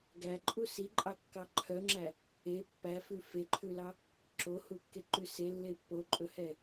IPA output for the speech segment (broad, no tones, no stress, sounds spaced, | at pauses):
ɡ æ ǃʼ u s i ǃʼ ɑ kː ɑ ǃʰ œ ŋ͡ǁ æ | e pː æ f ʉ f e ǃʰ ʉ l ɑ | ǁ o h u kː e ǃ ʉ s e lː e pː o ǃʼ ɵ h ɛ